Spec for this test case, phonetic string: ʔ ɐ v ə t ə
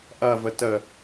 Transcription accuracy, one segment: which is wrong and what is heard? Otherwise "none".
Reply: none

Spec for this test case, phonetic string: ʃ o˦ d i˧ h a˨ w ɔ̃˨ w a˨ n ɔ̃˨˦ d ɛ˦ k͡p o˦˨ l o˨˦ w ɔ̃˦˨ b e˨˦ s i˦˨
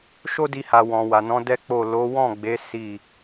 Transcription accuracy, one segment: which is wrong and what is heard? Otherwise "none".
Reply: b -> ɡ͡b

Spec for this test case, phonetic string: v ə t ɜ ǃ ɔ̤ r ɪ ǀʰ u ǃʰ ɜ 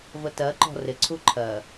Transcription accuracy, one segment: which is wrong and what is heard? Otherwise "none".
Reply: none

